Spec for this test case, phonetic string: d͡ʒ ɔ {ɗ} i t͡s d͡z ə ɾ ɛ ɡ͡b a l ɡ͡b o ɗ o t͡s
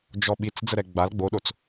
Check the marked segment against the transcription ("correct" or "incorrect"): incorrect